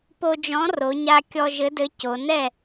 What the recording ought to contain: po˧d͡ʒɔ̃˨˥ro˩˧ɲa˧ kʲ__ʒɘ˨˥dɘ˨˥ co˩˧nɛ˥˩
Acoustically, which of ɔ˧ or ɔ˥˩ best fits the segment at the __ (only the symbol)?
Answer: ɔ˧